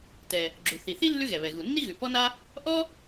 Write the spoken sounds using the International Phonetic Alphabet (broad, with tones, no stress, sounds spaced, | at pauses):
t ɛ˩ | ɡ͡ǁ u˩ θ i˩ θ i˥ lː ʉ˥ ɣ ɛ˩ β ɛ˩ ɣ u˩ nː i˥ ɣ ʉ˩ p ɔ˥ n a˥ | ʔ ɔ˥